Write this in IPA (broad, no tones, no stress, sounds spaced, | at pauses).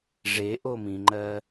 ʐ e ʔ o m ĩ ŋ͡ǃ ɜ